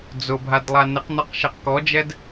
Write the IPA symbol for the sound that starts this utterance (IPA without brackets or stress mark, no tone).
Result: d͡z